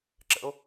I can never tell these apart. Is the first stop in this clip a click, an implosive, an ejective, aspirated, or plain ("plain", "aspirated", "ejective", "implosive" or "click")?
click